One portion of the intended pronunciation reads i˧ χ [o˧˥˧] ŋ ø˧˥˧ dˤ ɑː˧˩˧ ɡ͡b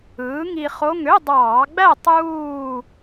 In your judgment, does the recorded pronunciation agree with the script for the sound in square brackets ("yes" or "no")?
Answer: yes